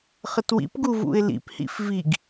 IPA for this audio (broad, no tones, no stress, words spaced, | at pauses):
χətwḭpɡu vṵɪ̯lḭphḭf viɡ